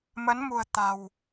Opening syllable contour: rising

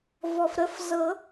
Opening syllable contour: low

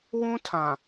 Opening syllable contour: high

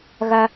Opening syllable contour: high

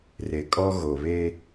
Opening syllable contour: low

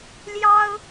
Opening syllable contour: high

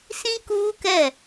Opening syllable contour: high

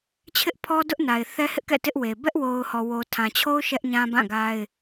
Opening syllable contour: high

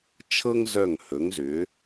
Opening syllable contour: high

